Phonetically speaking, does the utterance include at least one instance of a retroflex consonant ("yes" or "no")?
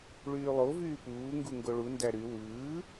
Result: yes